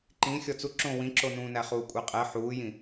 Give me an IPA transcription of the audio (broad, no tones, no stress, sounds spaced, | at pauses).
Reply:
ǃ ĩ xʲ ɔ t͡s u ǁ õ w ĩ ǁ o n ũː n æ χ uː kʷʼ e qʼ ɛ ħ uː j ĩ